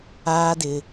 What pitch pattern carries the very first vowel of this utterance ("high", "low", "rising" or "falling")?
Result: low